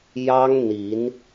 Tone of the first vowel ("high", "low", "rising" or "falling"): high